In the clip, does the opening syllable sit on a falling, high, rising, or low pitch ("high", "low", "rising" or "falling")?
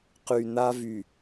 low